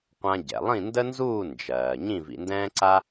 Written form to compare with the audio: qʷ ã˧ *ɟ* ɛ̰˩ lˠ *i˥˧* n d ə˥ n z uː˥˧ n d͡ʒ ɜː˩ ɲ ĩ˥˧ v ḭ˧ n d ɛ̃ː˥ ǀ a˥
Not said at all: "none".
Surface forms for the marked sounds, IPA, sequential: ɟ, ĩ˥˧

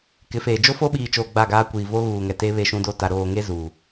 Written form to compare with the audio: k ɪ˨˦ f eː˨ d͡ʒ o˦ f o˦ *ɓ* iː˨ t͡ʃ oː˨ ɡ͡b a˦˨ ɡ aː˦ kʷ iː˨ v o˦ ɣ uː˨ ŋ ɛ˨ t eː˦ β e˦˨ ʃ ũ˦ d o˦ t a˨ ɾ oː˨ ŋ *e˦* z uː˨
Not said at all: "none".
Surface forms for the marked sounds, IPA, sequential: ɓ, e˦

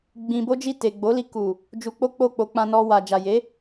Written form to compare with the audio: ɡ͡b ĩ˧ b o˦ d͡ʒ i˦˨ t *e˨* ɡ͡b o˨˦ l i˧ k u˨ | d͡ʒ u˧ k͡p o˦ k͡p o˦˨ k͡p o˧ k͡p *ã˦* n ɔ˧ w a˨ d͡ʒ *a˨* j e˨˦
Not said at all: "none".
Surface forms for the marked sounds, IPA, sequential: e˨, ã˧, a˨

